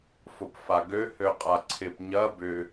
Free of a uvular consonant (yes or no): no